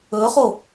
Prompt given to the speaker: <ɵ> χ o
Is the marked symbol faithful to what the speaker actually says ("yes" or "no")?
yes